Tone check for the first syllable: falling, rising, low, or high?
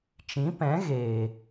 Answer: rising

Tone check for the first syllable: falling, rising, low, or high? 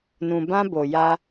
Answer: low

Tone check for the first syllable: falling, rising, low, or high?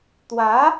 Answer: rising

